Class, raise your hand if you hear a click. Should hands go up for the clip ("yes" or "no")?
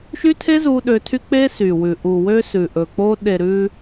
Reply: no